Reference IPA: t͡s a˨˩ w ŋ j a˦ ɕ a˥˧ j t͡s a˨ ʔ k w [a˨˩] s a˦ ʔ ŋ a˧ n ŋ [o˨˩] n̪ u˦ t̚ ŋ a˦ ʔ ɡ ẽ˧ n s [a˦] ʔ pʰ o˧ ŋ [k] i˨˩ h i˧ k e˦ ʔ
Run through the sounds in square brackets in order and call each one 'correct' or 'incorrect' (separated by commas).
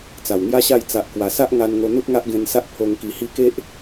correct, incorrect, correct, correct